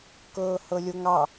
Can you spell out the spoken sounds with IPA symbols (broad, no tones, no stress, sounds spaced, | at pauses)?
k ɤː h ɤ lʲ o ŋ ɑ